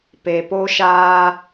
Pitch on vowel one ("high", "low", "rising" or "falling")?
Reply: low